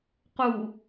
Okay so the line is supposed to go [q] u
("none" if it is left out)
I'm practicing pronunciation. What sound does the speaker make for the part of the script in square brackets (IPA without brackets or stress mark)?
q